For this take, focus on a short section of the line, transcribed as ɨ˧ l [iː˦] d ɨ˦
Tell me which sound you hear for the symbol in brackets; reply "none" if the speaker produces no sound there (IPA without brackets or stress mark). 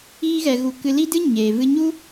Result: i˦